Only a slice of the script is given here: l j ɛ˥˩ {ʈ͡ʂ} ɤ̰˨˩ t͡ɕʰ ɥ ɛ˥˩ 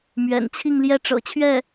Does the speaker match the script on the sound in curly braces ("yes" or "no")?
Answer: yes